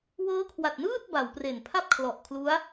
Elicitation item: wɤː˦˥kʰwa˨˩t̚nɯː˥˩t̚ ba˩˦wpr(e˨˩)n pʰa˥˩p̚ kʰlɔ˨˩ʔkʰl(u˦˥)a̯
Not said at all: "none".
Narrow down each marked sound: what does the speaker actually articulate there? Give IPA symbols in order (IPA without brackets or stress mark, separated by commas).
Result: e˨˩, u˦˥